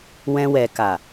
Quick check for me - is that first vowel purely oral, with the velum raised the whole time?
no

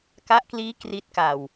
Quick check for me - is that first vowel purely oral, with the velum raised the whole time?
yes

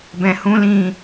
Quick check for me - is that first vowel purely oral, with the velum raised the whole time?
no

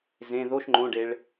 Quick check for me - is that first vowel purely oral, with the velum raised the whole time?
no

